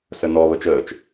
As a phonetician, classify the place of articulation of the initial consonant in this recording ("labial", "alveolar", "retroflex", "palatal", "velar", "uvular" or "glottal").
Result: alveolar